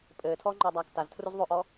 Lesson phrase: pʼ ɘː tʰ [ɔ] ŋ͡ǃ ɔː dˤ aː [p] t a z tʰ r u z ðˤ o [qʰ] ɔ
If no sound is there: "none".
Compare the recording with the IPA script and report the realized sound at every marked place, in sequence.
ɔː, k, ʔ

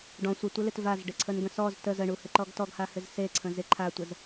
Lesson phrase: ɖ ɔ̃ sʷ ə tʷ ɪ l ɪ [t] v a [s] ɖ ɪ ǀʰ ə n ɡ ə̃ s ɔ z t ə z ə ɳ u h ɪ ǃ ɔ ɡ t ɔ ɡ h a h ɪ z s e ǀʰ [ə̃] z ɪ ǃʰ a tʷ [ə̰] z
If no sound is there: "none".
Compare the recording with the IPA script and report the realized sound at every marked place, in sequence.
t, z, ə̃, ə

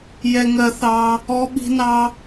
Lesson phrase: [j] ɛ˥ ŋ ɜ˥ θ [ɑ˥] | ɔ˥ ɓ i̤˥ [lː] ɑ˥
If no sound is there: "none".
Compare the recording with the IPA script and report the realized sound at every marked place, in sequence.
j, ɑ˥, n

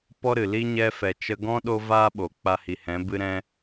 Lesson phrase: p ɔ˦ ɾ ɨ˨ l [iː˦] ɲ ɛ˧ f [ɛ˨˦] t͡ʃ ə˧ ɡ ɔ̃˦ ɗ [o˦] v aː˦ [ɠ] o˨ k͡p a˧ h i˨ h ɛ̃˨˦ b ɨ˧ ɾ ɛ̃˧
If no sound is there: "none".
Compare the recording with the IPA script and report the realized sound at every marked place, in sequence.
i˦, ɛ˨, o˦, ɓ

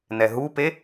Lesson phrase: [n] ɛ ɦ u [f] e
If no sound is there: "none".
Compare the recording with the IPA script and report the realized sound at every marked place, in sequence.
n, p

